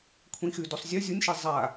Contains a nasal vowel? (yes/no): yes